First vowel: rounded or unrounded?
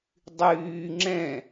rounded